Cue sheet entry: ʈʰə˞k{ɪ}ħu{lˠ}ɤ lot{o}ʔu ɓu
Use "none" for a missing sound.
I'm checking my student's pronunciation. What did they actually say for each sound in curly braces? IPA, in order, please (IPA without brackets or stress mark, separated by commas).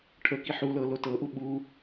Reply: i, l, ɤ